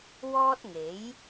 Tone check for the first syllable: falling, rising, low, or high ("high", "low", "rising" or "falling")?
high